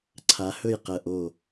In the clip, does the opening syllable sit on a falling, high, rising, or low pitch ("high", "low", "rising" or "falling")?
rising